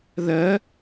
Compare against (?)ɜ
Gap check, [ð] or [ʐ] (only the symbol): ð